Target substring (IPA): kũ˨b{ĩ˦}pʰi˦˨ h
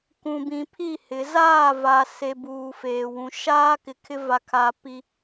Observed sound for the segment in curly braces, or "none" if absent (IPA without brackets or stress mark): ĩ˨